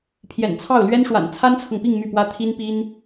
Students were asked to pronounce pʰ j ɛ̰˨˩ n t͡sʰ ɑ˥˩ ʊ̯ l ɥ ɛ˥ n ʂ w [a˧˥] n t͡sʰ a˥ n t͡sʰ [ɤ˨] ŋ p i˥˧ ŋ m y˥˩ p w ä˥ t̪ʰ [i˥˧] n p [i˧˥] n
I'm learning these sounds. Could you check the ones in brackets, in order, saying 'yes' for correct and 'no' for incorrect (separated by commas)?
no, yes, no, no